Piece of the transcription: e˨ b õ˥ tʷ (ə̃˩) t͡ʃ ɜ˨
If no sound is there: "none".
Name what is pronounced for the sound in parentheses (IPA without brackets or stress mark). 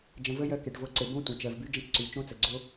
ə̃˩